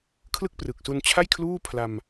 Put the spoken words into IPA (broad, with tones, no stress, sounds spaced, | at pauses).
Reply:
kʰ l ɯ˥˩ k̚ p r ɯ˨˩ k̚ s u˧ n t͡ɕʰ a˥˩ j kʰ l uː˥˩ pʰ l a˧ m